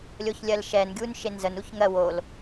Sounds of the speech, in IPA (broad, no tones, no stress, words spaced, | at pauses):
lʲoçlʲɜlʃɛnɡʲun ʃenzənuç ŋɜ wol